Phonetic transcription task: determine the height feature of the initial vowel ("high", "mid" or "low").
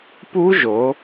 high